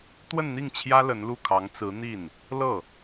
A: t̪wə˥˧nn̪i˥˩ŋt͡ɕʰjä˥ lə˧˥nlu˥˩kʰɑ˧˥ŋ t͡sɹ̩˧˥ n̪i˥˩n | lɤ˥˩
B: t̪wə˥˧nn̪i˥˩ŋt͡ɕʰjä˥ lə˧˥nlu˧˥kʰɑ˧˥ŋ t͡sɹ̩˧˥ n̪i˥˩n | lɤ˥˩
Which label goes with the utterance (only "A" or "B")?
A